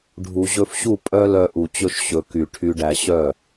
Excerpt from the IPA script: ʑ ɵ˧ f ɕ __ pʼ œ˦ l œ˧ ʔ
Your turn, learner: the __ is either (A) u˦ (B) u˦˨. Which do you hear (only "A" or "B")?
B